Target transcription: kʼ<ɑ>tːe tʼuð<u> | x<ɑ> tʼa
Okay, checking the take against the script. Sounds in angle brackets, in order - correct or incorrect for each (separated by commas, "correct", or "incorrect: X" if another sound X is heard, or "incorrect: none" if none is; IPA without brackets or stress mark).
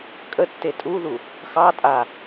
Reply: incorrect: ə, correct, correct